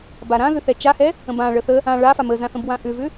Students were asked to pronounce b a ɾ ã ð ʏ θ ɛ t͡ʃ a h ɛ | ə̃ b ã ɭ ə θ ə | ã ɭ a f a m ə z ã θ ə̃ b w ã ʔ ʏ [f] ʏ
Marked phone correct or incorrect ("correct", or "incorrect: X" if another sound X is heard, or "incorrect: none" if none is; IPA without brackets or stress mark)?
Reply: incorrect: v